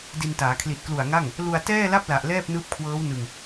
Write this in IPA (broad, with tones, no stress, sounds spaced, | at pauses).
d i˧ n t aː˩˦ kʰ l i˨˩ t̚ k l u˨˩ a̯ ŋ a˥˩ ŋ | l u˧ a̯ t ɛː˥˩ l a˥˩ p̚ l a˨˩ ʔ l ɛː˥˩ p̚ n ɯː˦˥ p̚ kʰ w ɤː˦˥ w n ɯ˧ ŋ